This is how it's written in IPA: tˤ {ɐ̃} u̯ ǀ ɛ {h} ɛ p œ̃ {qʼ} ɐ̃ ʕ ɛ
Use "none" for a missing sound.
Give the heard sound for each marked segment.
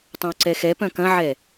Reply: ɐ̃, x, k

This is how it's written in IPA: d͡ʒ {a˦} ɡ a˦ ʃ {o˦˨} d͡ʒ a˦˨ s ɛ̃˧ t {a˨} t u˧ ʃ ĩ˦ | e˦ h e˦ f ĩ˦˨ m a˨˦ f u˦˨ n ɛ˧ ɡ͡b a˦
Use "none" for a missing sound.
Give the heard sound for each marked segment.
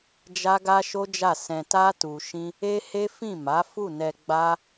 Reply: a˦, o˦, a˦

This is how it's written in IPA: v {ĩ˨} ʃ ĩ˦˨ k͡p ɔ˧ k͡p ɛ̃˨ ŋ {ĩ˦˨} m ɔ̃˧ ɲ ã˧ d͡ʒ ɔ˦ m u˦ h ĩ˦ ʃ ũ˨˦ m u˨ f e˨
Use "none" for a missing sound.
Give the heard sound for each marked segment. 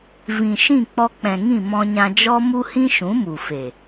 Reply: ĩ˨, ĩ˦˨

